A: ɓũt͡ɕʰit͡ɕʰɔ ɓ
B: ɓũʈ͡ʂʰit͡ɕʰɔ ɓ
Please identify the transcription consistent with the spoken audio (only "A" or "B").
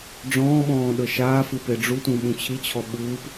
A